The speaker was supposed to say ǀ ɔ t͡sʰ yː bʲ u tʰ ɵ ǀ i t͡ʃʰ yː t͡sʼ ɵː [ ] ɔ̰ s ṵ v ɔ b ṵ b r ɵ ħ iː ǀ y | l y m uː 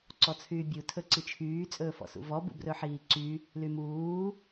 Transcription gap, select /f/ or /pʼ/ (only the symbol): f